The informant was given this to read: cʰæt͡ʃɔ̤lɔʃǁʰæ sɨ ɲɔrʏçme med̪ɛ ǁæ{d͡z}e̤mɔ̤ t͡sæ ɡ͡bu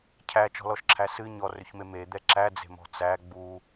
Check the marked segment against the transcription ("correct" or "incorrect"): correct